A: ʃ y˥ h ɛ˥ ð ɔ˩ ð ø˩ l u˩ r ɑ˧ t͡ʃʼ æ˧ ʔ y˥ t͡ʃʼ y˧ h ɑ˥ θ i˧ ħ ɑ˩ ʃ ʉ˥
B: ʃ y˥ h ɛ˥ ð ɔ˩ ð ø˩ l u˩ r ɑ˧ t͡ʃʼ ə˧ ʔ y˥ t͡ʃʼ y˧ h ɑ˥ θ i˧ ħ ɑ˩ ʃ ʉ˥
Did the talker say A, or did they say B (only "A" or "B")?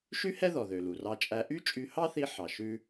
A